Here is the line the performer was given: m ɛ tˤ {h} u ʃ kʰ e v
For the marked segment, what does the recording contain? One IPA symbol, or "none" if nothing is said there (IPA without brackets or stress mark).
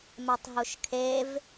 ɦ